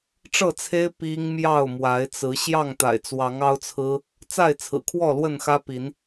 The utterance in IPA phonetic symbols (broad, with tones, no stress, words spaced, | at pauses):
ʈ͡ʂɤ˥˨t͡sʰe˦ɪ̯ pi˦ŋ mjɑ˥˨ʊ̯mwa˨˦ɪ̯t͡sɹ̩˨˦ ɕjɑ˥˨ŋt̪a̰˨˩ɪ̯t͡swɑ˨˦ŋ ɑ˦ʊ̯t͡sʰɹ̩˦ | t͡sa˥˨ɪ̯t͡sʰɹ̩˨˩kʰwɔ˥˨ lwə˥˨nxä˦pi˨˦n